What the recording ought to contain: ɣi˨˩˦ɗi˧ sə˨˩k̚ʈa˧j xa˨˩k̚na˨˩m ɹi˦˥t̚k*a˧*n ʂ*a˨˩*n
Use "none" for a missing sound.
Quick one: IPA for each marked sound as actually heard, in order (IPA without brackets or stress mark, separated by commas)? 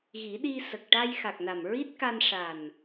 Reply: a˧, a˨˩